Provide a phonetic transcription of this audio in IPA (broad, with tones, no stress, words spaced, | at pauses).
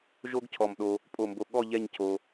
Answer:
ʒo˥ɡcʰɔ˧˩mɗo˧ | pʼo˧˩mbo˧˩ ɠɔ˥˧ ʎɛ˥˧ɲcʰo˧